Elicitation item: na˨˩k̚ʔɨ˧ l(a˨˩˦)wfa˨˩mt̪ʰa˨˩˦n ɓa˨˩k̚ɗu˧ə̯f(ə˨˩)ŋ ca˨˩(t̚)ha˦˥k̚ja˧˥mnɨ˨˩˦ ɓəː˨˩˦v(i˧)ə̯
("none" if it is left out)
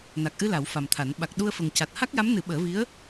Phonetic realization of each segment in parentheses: a˨˩˦, ə˨˩, t̚, i˧˥

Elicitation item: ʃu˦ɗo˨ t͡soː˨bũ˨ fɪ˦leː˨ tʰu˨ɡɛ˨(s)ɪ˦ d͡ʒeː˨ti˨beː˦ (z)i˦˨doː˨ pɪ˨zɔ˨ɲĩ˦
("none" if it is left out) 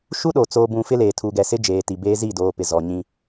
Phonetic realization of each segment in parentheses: s, z

